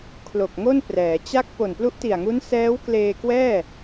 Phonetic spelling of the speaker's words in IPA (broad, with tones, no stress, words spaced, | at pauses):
kʰlo˨˩k̚ŋo˥˩n prɛː˩˦t͡ɕa˥˩k̚ po˨˩nplu˦˥ʔti˨˩a̯ŋu˦˥n sɛː˦˥w kleː˧kwɛː˥˩